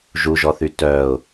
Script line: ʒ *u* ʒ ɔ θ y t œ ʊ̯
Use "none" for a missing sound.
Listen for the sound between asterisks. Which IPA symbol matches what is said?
u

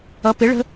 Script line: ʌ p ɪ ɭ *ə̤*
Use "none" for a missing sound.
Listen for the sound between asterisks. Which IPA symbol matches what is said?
ə̤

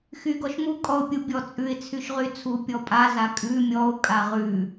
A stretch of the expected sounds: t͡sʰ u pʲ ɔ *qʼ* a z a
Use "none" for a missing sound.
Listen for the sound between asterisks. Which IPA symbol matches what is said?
pʼ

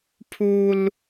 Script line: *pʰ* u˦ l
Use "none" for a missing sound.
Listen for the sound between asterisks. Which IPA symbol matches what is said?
pʰ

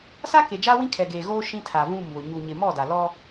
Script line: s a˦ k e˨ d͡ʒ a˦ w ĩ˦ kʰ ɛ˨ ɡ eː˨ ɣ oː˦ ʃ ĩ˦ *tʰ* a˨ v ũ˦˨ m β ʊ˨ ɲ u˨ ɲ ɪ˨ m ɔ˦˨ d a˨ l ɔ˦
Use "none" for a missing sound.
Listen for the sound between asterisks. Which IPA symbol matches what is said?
tʰ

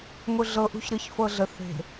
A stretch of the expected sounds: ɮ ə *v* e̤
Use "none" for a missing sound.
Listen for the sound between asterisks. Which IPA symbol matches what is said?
θ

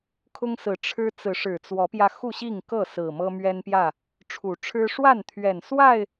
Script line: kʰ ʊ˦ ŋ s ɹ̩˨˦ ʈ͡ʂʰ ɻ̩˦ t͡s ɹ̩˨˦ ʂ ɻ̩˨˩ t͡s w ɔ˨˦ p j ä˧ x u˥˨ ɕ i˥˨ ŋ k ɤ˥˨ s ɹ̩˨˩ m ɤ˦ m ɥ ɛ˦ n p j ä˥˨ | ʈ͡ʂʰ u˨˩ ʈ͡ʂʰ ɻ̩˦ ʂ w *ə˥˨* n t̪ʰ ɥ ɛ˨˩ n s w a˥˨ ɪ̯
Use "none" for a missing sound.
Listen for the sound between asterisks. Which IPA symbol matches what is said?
a˥˨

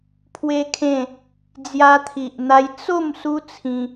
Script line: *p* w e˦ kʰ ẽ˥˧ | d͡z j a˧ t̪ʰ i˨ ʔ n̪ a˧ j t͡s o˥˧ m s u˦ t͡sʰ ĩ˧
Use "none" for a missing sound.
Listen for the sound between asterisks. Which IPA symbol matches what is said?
pʰ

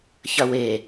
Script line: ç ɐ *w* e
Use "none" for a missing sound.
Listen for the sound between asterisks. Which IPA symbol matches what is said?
w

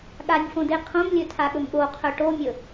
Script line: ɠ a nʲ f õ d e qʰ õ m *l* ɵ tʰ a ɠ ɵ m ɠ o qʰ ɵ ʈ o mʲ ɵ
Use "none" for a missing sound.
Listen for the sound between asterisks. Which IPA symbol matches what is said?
lʲ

